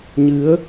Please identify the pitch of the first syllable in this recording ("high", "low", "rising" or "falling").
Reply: rising